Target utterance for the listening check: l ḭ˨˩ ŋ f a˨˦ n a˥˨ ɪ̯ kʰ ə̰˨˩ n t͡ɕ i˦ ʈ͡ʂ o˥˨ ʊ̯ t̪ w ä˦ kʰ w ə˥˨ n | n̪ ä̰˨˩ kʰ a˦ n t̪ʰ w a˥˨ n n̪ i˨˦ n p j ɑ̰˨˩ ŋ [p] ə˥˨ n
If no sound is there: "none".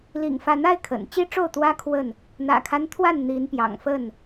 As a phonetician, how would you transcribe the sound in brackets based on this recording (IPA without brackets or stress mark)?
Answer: f